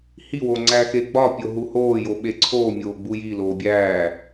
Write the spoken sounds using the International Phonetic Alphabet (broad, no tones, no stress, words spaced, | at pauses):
hiwo ŋ͡ǀæxeɡ͡bɒpʲo ɦuhoːjo ɓeǀʰoːmʲoː ɡ͡bujiloː bʲæː